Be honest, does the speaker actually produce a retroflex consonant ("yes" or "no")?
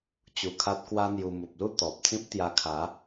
no